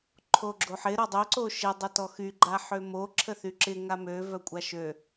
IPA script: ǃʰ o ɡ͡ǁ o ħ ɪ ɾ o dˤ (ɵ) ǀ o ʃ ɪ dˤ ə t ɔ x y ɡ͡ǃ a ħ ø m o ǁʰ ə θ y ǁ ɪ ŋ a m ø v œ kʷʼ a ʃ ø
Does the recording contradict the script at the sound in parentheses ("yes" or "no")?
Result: yes